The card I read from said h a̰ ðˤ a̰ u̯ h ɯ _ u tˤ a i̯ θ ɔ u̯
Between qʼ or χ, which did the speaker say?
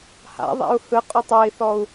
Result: qʼ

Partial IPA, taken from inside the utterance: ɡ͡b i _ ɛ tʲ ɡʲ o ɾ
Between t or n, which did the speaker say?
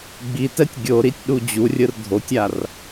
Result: t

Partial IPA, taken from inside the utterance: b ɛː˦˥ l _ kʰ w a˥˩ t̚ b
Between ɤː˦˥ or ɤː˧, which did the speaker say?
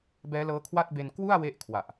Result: ɤː˦˥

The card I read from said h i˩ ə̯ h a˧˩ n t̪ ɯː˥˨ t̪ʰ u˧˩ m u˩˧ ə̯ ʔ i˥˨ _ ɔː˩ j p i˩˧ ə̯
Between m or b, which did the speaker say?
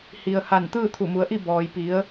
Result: b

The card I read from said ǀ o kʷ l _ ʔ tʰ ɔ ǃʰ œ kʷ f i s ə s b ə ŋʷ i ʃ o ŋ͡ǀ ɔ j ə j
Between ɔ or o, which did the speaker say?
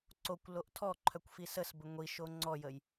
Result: o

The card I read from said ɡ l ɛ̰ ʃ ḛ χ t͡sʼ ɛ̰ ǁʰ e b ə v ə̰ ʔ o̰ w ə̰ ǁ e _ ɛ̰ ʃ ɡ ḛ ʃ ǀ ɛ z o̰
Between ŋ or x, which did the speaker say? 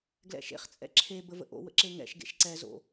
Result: ŋ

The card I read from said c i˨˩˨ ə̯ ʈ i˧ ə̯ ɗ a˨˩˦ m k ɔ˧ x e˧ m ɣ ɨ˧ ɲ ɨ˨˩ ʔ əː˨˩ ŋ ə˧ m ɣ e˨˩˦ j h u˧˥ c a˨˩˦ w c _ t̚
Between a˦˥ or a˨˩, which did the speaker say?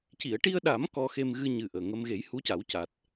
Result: a˨˩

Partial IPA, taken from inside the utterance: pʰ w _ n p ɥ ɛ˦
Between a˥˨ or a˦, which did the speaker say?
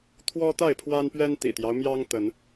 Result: a˦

